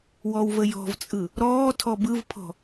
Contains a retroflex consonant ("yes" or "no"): no